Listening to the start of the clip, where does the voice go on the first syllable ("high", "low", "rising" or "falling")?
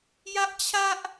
high